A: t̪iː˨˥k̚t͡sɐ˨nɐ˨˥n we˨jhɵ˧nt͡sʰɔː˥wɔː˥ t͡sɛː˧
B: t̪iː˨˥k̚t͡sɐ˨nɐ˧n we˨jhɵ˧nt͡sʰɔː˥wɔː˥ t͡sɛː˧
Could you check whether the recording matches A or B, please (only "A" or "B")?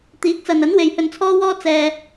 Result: A